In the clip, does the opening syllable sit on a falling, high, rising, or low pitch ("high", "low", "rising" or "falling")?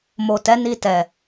low